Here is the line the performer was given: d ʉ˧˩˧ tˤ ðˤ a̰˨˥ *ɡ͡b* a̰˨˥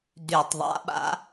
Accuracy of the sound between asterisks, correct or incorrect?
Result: incorrect